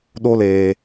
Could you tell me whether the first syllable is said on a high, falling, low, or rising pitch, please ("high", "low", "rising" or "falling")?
high